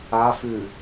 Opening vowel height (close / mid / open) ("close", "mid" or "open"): open